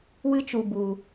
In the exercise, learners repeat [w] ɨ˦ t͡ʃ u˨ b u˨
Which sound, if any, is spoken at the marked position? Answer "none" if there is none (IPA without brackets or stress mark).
w